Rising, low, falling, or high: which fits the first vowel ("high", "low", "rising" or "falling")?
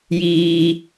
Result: high